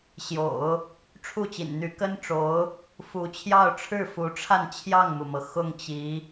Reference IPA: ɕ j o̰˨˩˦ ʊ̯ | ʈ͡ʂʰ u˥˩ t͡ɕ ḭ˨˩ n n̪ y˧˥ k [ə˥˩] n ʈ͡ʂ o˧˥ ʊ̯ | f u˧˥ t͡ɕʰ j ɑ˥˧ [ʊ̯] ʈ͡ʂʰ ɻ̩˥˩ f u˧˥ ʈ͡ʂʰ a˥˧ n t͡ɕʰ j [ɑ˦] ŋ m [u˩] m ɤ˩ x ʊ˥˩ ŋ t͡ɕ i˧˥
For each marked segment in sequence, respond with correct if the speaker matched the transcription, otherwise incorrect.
incorrect, correct, incorrect, correct

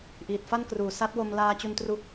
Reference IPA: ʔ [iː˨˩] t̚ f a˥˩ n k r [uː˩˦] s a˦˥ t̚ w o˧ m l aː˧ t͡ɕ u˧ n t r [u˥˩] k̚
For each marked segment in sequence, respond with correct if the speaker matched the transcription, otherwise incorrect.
correct, correct, incorrect

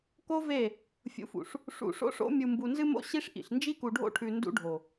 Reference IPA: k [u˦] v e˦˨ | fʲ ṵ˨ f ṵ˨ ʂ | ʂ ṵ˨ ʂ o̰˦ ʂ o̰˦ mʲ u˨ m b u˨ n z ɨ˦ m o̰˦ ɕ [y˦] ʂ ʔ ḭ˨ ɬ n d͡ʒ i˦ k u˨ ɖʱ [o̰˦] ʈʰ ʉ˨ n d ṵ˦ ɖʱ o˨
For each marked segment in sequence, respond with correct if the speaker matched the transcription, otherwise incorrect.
incorrect, incorrect, correct

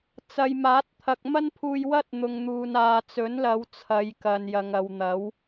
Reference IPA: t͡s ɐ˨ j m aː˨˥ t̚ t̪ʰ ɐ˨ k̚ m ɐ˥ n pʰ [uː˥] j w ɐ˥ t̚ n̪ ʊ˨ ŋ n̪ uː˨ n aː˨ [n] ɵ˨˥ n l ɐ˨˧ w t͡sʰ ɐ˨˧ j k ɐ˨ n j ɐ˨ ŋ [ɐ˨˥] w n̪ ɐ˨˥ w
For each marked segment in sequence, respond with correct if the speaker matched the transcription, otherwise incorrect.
incorrect, incorrect, incorrect

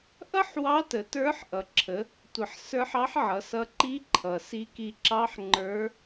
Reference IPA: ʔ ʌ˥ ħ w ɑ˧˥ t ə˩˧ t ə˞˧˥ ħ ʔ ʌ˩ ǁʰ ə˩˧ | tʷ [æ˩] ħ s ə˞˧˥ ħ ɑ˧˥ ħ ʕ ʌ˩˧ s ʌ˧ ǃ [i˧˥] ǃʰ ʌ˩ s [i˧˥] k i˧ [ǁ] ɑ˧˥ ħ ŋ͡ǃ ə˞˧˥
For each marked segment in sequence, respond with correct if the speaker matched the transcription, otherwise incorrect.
incorrect, correct, correct, correct

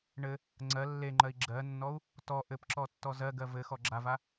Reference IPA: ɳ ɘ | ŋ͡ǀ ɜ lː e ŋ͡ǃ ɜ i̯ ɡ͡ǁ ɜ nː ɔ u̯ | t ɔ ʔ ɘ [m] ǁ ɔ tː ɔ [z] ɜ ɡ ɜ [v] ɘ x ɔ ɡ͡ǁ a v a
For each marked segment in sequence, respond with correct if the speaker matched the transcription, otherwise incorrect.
incorrect, correct, correct

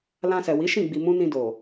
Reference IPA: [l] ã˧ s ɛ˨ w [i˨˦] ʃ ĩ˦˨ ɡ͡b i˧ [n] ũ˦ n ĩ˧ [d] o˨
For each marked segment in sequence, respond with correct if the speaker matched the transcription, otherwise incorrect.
correct, correct, incorrect, correct

